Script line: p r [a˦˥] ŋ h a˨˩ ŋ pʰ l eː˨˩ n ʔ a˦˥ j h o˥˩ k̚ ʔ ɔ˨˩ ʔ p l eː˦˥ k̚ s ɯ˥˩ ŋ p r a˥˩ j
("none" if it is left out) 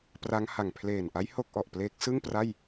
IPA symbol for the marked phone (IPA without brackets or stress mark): a˦˥